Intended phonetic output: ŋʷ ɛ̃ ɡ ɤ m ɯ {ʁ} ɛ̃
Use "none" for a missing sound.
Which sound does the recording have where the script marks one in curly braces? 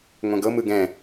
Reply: ɡ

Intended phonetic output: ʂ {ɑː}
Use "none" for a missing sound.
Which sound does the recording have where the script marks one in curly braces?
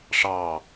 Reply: ɑː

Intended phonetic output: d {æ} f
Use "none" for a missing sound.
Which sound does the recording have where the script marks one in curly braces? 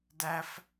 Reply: æ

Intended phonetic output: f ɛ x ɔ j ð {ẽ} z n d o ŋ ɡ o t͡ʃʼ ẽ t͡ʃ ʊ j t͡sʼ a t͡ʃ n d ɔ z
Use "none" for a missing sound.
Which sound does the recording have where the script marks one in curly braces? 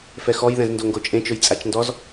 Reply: ɛ̃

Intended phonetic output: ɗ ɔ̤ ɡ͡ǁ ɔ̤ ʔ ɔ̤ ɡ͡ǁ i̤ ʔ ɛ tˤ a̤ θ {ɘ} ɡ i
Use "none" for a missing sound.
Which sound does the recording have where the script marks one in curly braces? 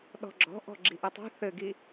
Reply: ɘ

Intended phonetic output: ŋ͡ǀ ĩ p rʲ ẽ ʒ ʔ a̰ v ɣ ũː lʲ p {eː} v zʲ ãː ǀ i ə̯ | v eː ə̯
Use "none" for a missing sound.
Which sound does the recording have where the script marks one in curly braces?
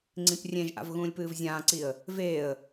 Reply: ɨː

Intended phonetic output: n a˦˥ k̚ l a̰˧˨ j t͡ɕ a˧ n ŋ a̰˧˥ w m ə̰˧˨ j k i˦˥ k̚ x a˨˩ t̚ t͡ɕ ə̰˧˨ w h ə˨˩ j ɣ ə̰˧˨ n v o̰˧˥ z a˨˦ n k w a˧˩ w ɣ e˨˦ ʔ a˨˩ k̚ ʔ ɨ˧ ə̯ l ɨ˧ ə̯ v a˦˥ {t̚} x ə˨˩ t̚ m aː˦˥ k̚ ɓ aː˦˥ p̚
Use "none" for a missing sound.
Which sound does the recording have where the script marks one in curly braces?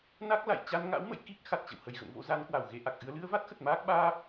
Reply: t̚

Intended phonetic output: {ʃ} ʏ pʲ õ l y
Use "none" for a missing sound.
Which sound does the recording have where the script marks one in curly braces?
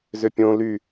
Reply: z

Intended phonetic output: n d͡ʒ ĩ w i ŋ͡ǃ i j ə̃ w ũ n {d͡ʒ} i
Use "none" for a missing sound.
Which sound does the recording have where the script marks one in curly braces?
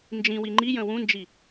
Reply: d͡ʒ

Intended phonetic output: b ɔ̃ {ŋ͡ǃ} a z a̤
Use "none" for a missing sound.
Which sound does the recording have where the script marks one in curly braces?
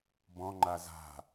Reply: ŋ͡ǃ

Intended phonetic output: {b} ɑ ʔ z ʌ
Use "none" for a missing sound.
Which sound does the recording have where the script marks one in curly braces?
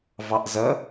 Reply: v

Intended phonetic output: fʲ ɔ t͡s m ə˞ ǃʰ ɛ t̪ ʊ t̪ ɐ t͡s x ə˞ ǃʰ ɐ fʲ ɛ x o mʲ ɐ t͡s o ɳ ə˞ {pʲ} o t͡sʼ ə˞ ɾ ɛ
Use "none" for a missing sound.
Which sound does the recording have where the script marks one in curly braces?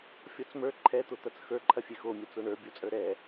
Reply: bʲ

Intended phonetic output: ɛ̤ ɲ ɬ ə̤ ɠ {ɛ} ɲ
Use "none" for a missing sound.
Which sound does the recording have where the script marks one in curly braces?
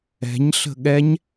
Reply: ɛ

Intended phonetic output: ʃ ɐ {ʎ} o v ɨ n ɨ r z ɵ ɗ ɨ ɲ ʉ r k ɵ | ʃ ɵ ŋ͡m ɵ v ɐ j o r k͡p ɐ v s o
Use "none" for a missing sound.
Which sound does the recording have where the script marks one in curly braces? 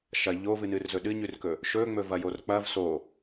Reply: ʎ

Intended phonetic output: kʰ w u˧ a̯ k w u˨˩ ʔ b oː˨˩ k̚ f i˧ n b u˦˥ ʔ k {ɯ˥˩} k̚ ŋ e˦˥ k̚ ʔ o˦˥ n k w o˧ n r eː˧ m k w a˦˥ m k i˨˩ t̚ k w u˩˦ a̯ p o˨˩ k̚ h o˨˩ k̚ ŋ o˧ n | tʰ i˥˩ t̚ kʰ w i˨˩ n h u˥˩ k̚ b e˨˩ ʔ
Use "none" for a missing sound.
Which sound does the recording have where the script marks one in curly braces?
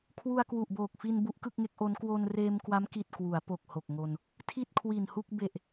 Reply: ɯ˥˩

